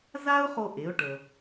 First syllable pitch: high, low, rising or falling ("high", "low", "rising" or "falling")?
high